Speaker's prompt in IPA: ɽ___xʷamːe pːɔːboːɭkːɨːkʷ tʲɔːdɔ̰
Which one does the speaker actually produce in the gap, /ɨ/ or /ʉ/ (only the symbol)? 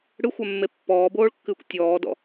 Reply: ɨ